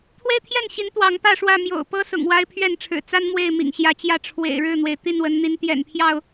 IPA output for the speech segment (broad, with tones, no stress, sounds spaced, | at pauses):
t̪ʰ w e˦ ɪ̯ t̪ʰ j ɛ˥˨ n ɕ i˨˦ n t̪ w ɑ˨˦ ŋ p ä˥˨ ʂ w ä˥˨ m j o̰˨˩ ʊ̯ p ɤ˦ s ʊ̰˨˩ ŋ w a˦ ɪ̯ pʰ ɥ ɛ˥˨ n ʈ͡ʂʰ ɻ̩˨˩ t͡s a˦ n m w e˥˨ ɪ̯ m ḭ˨˩ ŋ ɕ j ä˨˦ t͡ɕ j ä˥˨ ʈ͡ʂʰ w ḛ˨˩ ɪ̯ ɻ ɻ̩˥˨ n̪ w e˩ ɪ̯ t̪ i˥˨ n w ə˨˦ n n̪ i˨˦ n t̪ j ɛ̰˨˩ n pʰ j ɑ˥˨ ʊ̯